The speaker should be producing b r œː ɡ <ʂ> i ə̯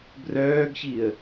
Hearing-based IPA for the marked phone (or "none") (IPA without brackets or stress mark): ç